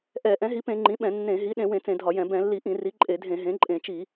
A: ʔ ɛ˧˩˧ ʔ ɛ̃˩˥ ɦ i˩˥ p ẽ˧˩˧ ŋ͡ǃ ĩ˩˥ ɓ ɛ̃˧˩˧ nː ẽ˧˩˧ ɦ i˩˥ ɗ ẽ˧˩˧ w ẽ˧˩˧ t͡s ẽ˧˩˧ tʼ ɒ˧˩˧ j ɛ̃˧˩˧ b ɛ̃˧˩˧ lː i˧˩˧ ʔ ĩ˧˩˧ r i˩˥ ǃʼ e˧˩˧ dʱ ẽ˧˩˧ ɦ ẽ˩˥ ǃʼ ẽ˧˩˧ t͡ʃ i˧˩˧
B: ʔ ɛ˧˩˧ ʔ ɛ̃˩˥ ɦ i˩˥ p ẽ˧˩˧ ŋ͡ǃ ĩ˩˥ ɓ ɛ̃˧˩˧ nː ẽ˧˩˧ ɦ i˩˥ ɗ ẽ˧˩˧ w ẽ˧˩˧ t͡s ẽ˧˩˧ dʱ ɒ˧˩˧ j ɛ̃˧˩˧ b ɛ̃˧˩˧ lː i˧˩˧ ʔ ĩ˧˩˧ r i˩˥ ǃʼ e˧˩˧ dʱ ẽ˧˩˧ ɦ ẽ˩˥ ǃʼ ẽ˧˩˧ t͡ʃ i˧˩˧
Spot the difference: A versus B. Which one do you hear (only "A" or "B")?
B